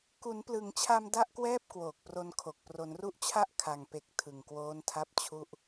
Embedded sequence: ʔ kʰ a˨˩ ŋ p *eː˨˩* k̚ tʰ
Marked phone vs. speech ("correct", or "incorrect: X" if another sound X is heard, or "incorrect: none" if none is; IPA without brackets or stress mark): incorrect: e˨˩